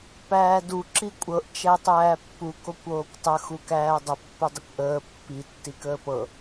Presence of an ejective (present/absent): present